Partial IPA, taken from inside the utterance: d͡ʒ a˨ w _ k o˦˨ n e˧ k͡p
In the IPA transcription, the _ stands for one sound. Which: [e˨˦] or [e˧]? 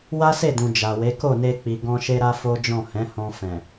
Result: e˨˦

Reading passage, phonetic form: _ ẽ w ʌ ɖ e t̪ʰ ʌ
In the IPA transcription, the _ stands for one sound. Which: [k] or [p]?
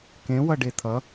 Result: k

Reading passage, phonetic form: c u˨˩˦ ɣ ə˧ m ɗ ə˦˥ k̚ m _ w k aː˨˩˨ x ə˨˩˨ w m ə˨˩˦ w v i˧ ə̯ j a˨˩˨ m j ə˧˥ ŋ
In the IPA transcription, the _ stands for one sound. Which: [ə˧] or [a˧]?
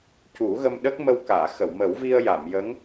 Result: ə˧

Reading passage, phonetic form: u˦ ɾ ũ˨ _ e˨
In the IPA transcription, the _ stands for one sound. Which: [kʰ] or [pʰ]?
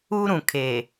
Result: kʰ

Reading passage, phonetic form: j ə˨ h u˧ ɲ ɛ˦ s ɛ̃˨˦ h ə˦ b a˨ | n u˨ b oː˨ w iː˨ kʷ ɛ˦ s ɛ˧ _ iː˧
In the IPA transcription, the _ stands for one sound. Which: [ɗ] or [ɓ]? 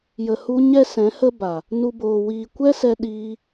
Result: ɗ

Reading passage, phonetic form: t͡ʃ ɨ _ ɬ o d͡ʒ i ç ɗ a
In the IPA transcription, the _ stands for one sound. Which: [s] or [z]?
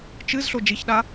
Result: z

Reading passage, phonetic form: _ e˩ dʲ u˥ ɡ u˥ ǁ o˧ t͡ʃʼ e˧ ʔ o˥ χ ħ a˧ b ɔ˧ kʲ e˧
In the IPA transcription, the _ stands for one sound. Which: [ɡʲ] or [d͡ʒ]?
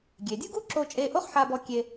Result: ɡʲ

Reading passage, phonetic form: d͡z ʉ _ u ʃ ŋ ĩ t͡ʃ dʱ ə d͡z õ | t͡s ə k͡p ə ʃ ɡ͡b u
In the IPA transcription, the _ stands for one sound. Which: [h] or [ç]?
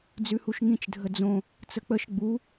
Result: h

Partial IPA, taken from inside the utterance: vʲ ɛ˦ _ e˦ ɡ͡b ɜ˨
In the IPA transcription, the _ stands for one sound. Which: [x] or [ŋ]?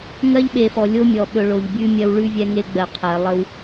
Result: ŋ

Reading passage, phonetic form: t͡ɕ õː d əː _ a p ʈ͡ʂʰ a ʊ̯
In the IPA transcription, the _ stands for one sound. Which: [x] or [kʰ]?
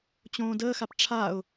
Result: x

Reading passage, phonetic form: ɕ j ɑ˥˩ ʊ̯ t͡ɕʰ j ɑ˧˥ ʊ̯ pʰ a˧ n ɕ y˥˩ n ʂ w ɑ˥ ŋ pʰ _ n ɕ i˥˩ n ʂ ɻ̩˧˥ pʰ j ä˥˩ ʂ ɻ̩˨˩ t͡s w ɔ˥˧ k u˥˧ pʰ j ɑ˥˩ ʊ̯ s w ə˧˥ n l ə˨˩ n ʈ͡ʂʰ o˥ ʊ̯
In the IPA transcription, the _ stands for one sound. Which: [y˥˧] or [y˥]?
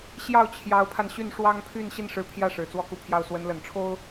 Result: y˥˧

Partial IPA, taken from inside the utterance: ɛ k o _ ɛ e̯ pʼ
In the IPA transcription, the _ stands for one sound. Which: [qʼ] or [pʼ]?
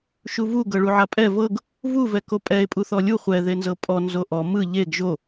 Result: pʼ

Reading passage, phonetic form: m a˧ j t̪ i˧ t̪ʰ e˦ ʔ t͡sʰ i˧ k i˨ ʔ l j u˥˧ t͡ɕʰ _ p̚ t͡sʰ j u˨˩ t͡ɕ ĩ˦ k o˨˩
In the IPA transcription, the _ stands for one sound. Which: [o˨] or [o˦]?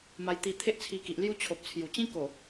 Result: o˨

